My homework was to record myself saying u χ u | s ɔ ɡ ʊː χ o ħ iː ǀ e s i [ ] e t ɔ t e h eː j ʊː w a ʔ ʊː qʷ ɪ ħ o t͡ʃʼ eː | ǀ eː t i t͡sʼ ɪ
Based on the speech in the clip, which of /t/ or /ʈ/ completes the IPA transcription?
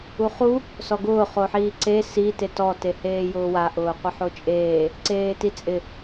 t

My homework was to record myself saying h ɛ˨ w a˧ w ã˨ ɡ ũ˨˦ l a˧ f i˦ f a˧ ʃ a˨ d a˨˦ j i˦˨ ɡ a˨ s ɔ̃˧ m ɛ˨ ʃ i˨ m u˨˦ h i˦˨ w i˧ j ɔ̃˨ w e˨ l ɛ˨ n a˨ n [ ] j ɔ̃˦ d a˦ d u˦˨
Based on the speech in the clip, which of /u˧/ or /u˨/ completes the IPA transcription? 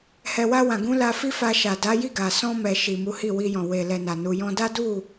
u˧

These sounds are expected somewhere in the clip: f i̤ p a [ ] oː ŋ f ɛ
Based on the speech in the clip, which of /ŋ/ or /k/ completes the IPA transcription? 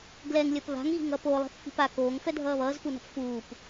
k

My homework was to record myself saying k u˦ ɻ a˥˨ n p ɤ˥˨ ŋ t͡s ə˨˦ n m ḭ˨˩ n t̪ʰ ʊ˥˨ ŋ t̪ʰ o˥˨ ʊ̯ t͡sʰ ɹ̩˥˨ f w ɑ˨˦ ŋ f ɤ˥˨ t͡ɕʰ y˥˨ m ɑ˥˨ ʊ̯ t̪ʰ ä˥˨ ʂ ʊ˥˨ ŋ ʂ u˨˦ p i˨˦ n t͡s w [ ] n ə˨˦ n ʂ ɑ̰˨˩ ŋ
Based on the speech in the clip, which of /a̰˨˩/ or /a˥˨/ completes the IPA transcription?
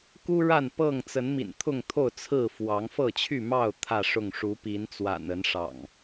a̰˨˩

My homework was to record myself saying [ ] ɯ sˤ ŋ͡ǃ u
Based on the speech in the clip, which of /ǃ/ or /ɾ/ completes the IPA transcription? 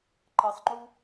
ǃ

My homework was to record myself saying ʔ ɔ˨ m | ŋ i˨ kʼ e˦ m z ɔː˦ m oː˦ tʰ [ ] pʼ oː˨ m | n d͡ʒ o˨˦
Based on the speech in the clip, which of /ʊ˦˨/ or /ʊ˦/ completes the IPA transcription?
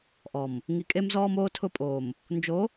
ʊ˦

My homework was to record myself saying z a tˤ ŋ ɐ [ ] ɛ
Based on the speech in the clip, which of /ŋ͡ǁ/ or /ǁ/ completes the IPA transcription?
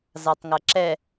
ǁ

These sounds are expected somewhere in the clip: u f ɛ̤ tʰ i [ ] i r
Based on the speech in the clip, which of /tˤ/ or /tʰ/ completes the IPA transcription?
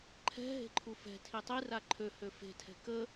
tˤ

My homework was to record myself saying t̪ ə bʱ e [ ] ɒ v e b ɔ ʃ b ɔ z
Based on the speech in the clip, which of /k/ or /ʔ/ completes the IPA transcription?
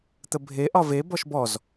ʔ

